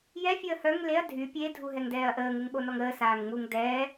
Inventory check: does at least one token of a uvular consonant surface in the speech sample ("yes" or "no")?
no